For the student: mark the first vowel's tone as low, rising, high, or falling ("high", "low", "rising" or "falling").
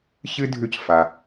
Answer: high